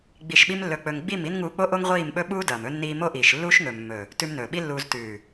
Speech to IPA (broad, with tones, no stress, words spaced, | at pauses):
ɡ͡bi˧ʃɓi˦mlːɵ˧k͡pɵ˧ŋ ɡ͡bi˦˨mi˦n ŋuː˧k͡po˦ʔo˦ŋ ʁʷiː˦˨mɓɵ˦ɓuː˦dɐː˨m ɵ˧nːiː˧ mo˦ʔiː˨ʃlːuː˦ʃ ŋɵ˨mːɵ˨ | tʉ˧mnɵː˨ɓi˦lːuː˧z tʉː˨